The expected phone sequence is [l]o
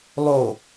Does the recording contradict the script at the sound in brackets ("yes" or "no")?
yes